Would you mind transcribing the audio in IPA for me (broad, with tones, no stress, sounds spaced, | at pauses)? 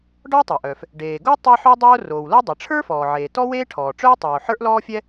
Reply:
ɖ ɔ˥ u̯ tˤ ɤ˩ ʔ œː˩ f | ɖ eː˩ ɡ o˥ tˤ e˥ ħ œ˥ dˤ oː˥ r oː˩ w l o˥ dˤ e˩ ʈ͡ʂʰ ə˞˥ f ɔː˩ ʕ eː˩ t ɔ˥ w eː˥ ʈʰ ɔː˩ ʈ͡ʂ œ˥ j tˤ oː˩ ħ ə˞˥ ʔ l ɔː˥ fʲ ɛ˥